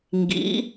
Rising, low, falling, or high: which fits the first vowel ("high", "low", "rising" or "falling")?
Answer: rising